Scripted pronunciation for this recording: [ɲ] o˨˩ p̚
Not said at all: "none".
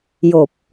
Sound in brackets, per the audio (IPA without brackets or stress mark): j